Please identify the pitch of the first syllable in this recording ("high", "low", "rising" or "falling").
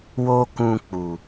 high